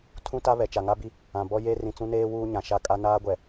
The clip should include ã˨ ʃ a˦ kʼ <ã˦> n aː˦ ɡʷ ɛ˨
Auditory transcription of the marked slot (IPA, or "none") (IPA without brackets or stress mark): a˦